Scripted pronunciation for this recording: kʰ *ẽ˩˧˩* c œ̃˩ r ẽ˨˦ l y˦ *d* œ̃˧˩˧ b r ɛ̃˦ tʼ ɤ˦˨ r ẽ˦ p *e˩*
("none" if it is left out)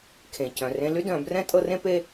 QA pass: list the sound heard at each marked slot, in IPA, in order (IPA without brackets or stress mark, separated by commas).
ẽ˩, d, e˦